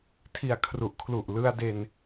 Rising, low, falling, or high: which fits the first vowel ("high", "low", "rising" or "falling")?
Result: low